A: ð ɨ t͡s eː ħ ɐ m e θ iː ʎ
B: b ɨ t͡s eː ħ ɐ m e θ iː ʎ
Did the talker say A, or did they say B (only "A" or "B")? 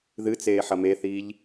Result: A